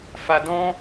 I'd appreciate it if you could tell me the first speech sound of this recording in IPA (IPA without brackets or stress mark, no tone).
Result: f